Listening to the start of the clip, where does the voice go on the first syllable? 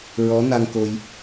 rising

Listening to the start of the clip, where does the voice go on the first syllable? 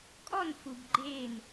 falling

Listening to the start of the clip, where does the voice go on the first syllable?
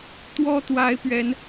high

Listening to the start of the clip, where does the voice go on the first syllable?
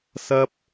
high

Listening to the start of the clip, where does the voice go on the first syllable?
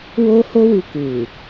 high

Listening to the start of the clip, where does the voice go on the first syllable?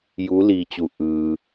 rising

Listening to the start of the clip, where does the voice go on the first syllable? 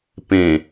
low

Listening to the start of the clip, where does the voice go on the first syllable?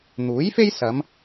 rising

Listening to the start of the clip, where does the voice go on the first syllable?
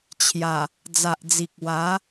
low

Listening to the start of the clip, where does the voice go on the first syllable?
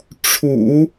low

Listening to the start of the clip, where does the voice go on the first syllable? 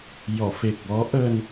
low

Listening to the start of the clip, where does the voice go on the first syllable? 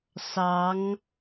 rising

